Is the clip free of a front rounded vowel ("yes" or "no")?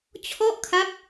yes